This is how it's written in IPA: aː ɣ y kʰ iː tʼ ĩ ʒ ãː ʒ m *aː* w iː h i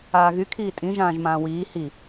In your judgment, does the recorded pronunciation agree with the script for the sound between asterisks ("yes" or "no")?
no